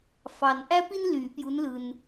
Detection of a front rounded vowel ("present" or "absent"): present